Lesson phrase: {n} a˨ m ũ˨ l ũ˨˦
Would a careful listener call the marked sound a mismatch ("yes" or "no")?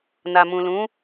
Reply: no